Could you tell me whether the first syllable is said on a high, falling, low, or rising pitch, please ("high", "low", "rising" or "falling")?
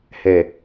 low